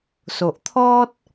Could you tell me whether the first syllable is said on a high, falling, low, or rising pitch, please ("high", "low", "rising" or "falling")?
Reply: low